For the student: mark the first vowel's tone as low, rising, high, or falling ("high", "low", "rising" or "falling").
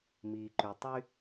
low